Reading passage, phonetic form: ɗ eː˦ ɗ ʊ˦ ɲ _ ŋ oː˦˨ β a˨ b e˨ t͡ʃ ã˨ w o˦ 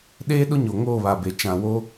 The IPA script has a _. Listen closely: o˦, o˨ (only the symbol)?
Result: o˨